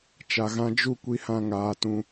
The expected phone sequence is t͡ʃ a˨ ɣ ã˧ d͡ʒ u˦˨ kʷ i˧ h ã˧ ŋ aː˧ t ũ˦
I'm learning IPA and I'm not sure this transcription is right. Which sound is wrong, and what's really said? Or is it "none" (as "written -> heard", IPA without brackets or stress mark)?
none